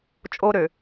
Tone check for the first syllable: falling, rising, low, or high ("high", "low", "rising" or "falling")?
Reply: high